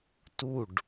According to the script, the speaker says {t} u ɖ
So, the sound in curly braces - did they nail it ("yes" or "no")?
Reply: yes